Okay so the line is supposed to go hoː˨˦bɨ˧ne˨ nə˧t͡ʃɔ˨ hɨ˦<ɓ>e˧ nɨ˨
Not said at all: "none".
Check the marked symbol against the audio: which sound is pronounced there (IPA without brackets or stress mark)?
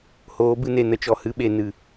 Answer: ɓ